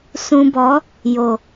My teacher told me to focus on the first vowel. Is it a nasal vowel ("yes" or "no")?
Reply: yes